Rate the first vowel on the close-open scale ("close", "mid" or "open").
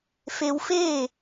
mid